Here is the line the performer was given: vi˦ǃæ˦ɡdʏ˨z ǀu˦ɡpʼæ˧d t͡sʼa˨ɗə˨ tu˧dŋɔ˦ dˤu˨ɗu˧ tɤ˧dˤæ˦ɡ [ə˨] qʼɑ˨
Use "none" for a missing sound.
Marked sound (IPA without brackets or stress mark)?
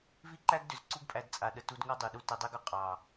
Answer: ʏ˨